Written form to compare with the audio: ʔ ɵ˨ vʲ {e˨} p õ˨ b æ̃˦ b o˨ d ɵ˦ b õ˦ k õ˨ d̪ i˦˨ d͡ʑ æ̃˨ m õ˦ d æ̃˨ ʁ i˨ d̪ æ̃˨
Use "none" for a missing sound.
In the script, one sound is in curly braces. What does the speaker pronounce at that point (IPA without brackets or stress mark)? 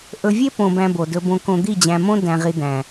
e˦